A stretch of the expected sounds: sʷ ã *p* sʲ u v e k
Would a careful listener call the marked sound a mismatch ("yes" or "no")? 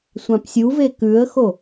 no